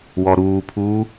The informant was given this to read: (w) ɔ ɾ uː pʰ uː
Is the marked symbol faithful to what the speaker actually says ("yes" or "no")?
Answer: yes